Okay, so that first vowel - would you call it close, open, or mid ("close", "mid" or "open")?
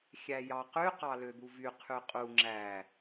open